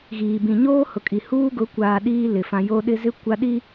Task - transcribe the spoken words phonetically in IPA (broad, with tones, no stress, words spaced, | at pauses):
ɣiː˨bĩ˨ ɲoː˦ hʊ˨kʼi˨ huː˦ɡʊ˨˦kʷaː˨ ɗiː˦lɪ˨ fã˨ jo˦ɗɪ˦ zɪ˦ kʷa˦ɗi˦